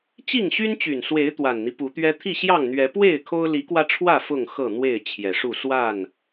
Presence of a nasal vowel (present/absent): absent